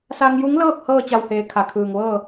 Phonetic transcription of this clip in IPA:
s a˧ ŋ j u˧˥ ŋ l ɤː˥˨ k̚ h ɤː˥˨ t͡ɕ a˧˩ w h eː˩ kʰ a˩˧ kʰ ɯː˩ ŋ ʋ ɤː˥˨

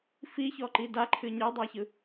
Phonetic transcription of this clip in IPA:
f i ç ɔ ǃ i d a ǃʰ ɨ ɲ e dˤ a ç ɯ

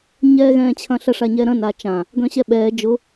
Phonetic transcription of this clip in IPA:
ɲ ɛː ɣ ɛ̃ː t͡ɕʰ ɐ̃ ɬ ɐ ʂ a ɲ ɛ ɾ ɐ̃ n a t͡ʃ ã | ɡ œ̃ ɕ ɛ ɓ ɛː d͡ʒ ʊ

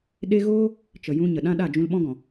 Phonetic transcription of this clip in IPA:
ɗ e˦ ɣ oː˦ | t͡ʃ ə˨ j ũ˧ ɲ ə˨ ɗ ã˦ ɗ a˦˨ d͡ʒ ũ˧ l ɓ ɔ̃˦ ɡ ɔ̃˨

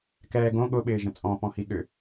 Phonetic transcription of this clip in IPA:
k ɛː ɡ õ ɠ ʊ ɓ ɪː ʒ ə̃ t͡sʼ ɔ̃ p ɔ̃ h i ɠ ʏ

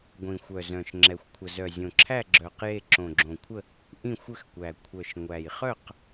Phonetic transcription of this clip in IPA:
ɡʷ ĩ˨˩ xʷ œ˨˩ z œ̃˨˩ ʃ ŋ͡ǁ ɛ˨˩ xʷ kʷʰ ə˨˩ z œ˨˩ zʲ õ˨˩ ǁʰ æ˥˨ ɡ͡ǁ œ˨˩ q j e˥˨ ǁ õ˨˩ ɡ͡ǁ õ˨˩ kʷʰ ə˥˨ | ʔ ĩ˥˨ xʷ ʏ˥˨ x kʷ æ˨˩ kʷʰ œ˨˩ ʃ ŋʷ æ˨˩ j χ œ˥˨ q

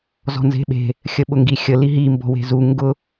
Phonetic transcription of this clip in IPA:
z ɔ̤ n z e̤ ɓ e̤ | xʲ ə ɓ ʊ ŋ ɡ i xʲ ə l i ɦ i m b ɔ̤ w e̤ z u ŋ ɡ ʊ

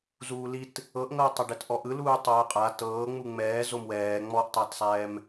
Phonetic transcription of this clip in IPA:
z uː l i t | ɤ ʔ ŋ ɤː tˤ a ɖ ɛ t ʔ ɔ ʔ ɯ l uː tˤ ɤː qʼ a t ɤː ŋ͡m u ŋ͡m ɛː z o m w ɛː ŋ͡m ɔ ʔ tˤ a t sˤ ɛː m

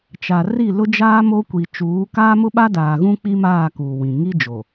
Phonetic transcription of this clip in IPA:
t͡ʃ a˨ r i˦˨ l ʊ˦ d͡ʒ aː˦ m o˦ kʷ i˨ t͡ʃ uː˨˦ k aː˦ m ʊ˦ ɓ a˦ d aː˨ ɣ ũ˦ k͡p i˦ m aː˦˨ k uː˨ w ĩ˨ ŋ i˦ d͡ʒ o˨

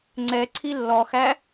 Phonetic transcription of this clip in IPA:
ŋ͡ǀ ɛ ǀʰ i lː ɔ x æ

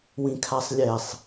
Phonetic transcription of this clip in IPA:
w ĩ kʰ a sˤ lʲ ɛ sˤ

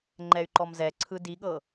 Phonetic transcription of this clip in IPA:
ŋ͡ǃ ɛ y̯ ǃ ɔ m z ɛ ǀʰ ɯ d i ɠ ɤ

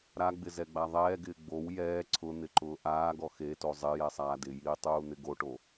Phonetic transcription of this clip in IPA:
ɾ a ɡ͡b ɪ z ɛ ɡ͡b a ðˤ ɛː ɡ ɪː ɡ͡b o w j ɛː ǀʰ ʊ n̪ ɪ ǃ ʊː ʔ aː ɡ ɔ x e t o zˤ ɪ j ɛ sˤ aː d ɪ j iː tˤ uː n̪ ɪ ɡ o ʈ o

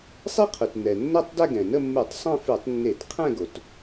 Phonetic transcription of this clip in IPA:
sˤ e˥ qʰ ʉ˩ t n ɛ˩ nː ɛ˥˧ tˤ d ɛ˥˧ ɡ ɛ̃˩ n ə˥˧ mː ʉ˧˩˧ tˤ sˤ ẽ˥˧ f ʉ˧˩˧ tˤ nː e˧˩˧ t qʰ ɛ̃˥˧ ɡ o˩ t

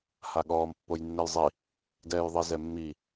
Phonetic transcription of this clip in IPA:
h a ɠ ɔː m pː o j nː ɛ j zˤ i | d ɛː j ðˤ i z ɛ mː i

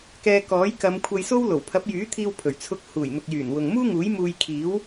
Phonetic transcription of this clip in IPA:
k ɛː˧ k ɔː˨˥ j k ɐ˨˧ m kʷʰ ɐ˧ j s o˥ w l o˨˩ w pʰ ɐ˨˥ p̚ j yː˨˥ t̪ʰ iː˧ w pʰ ɵ˨˩ ɥ t͡sʰ ʊ˧ k̚ h uː˨˩ j n̪ ʊ˨ k̚ j yː˨˩ n w ʊ˨ ŋ m uː˥ ŋ uː˨˥ j m uː˧ j kʰ iː˨˥ w

